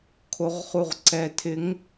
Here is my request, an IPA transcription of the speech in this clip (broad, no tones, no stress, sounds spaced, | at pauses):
kʰ o ʁ χ u ʁ ǀ ɛ tʰ ɪ ŋ